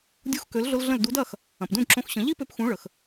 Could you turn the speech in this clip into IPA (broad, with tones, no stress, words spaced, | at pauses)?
dʲu˧xkø˩˥lɮʊ˧l ɮə̃˥˩l du˩˥dɐ˥˩x | ɐ̃˩pdũ˥˩dǁõ˧xɕə̃˩˥ ʎi˥pø˧pxũ˩˥ ɭə˩x